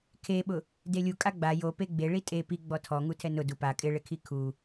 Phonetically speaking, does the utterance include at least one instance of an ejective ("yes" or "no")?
yes